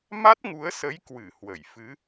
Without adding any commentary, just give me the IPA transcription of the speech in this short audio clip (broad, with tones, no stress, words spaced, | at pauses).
ma˦˥t̚ŋu˨˦ə̯sə˨˦j kwɨ˧˩ hwə˧˩jfɨ˨˦